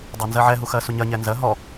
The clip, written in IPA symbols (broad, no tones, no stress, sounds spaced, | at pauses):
dˤ ɜ n z ɜ ʕ ɛ ɦ u x ɜ s u ɲ ɜ ɲ ɛ n z ɜ ɦ ɔ